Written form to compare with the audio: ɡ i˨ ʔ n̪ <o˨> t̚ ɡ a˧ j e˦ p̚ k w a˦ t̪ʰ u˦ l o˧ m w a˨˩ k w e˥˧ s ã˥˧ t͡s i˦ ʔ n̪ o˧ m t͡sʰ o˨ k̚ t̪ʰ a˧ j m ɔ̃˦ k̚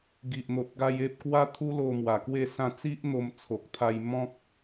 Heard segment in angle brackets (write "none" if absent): o˨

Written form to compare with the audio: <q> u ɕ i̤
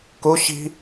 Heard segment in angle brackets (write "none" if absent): k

